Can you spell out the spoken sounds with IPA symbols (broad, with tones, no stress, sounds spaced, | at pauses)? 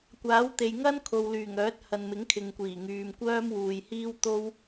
kʷ aː˨˥ w t̪ e˨ j ŋ ɐ˥ n kʰ o˨ w l yː˨˩ ŋ œː˨˥ t̚ h ɐ˨ n m ɪ˨˥ ŋ kʰ ɪ˨ ŋ kʷ iː˨˩ ŋ yː˨ m kʷ œː˥ m w uː˨ j h iː˥ w t̪ o˥ w